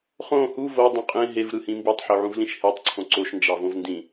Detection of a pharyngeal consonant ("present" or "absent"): present